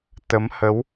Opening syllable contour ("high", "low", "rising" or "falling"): rising